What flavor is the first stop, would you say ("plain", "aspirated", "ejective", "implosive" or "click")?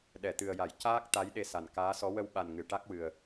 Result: implosive